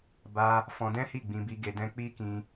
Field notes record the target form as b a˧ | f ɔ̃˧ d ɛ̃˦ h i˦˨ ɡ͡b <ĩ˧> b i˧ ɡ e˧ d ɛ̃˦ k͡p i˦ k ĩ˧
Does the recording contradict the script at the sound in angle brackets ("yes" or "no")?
no